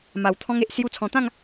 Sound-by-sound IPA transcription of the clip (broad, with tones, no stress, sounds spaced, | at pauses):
m a˨˩ w t̪ʰ ɔ̃˧ ŋ e˨ ʔ s j u˧ t͡sʰ ɔ̃˨˩ t̪ ã˥˧ ŋ